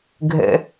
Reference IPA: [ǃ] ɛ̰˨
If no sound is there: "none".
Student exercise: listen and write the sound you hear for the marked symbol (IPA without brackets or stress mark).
ɡʱ